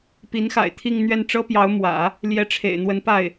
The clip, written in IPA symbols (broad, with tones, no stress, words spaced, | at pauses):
pi˧˥nxa̰˨˩ɪ̯ t̪ʰi˥˧ŋn̪ɥɛ˥˩n ʈ͡ʂɤ˥pjɑ˧˥ʊ̯ mwä̰˨˩˦ | ljɛ˧˥ʈ͡ʂʰḛ˨˩ɪ̯n̪wə˧˥n pa˥˩ɪ̯